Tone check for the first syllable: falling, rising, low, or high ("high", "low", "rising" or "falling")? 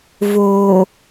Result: low